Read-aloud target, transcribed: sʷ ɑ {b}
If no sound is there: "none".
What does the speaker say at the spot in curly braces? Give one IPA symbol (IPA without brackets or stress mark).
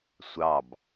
b